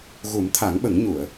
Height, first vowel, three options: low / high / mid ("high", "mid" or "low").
high